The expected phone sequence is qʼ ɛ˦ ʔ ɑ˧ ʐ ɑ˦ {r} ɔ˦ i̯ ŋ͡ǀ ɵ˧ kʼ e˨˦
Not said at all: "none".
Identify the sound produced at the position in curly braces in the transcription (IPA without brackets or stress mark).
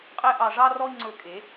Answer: r